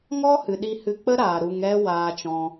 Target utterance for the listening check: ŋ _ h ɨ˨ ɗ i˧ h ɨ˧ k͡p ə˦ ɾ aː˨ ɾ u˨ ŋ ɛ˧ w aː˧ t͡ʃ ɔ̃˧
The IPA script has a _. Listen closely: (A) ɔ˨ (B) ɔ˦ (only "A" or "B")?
B